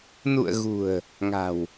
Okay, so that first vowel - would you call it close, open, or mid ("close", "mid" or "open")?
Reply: close